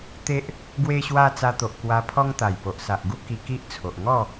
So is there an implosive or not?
no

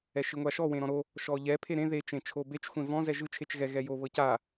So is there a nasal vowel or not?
yes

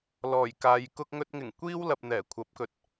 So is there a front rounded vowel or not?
no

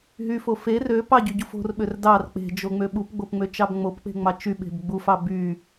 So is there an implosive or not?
yes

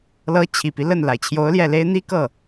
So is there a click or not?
no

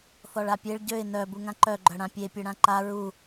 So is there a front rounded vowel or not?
yes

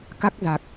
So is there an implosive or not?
no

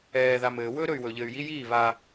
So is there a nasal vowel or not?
no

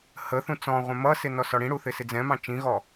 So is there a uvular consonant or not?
yes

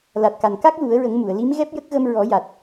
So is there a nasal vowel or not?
no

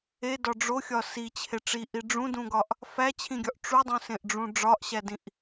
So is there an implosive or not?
no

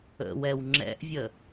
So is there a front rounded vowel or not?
no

